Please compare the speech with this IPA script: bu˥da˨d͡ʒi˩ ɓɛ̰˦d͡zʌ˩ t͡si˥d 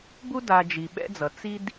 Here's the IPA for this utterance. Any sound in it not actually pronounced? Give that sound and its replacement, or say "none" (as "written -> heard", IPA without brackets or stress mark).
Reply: none